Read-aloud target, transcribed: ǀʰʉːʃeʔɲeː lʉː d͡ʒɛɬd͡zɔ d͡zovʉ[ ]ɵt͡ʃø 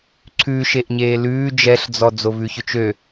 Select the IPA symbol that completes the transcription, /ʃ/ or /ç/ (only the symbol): ç